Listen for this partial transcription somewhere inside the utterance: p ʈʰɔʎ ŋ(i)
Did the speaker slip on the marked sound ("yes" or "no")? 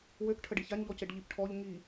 no